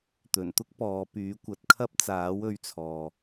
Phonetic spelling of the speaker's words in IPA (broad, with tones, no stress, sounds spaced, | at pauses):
t̪ ɵ˨˩ n t̪ ʊ˥ k̚ p ɔː˨˧ p yː˨˥ kʷ ɐ˨˥ t̚ kʰ ɐ˥ p̚ t͡s aː˨˥ w ɵ˨˧ ɥ t͡sʰ ɔː˨